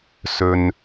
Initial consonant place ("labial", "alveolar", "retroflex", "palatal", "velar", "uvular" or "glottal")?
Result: alveolar